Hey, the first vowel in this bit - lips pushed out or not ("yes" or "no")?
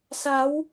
no